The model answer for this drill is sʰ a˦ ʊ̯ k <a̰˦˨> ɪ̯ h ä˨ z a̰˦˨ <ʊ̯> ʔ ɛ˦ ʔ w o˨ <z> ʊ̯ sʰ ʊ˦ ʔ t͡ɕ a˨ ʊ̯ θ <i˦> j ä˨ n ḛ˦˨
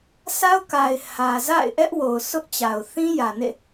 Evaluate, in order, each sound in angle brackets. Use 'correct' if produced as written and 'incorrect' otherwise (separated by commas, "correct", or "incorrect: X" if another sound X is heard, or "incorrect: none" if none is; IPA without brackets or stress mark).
incorrect: a˨, incorrect: ɪ̯, incorrect: none, incorrect: ĩ˦